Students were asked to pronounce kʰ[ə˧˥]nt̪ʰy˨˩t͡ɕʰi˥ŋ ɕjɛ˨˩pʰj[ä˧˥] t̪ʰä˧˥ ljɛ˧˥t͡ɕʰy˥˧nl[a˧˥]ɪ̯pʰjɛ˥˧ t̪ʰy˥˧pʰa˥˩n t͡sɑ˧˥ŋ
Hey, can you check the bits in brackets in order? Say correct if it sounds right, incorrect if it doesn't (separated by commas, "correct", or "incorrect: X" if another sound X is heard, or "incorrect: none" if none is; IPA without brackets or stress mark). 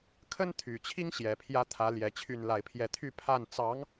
incorrect: ə˥, correct, incorrect: a˥˧